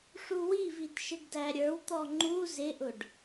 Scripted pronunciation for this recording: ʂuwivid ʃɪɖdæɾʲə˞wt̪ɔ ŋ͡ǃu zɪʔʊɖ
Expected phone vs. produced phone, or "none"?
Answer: none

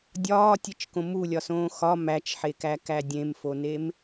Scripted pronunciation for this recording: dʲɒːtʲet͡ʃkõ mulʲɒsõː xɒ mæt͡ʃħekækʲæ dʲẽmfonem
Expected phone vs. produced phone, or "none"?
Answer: kʲ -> k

